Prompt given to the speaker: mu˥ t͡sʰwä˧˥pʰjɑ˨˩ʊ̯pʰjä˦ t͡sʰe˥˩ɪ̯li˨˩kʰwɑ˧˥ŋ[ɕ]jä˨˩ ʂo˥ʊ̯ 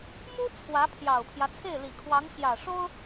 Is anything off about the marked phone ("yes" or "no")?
no